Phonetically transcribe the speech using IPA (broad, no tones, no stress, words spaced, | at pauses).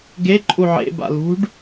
ɡe ǃʼuʕḛ ba̰lṳɖ